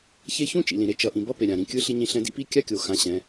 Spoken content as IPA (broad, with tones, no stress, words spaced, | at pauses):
çe˥ çũ˥t͡ʃḭ˩lĩ˩ ɾe˩˧t͡ʃʌ˩˧ʔĩ˩ bʌ˧˥pe˩ ɾʲã˩ɾĩ˩˧kʲɯ˧˥ ɬi˧ɲĩ˧ ɬɛ̃˧dḭ˥pi˧˥ kʲa˧˥kʲo˩xã˩˧ ɕɛ̃˩˧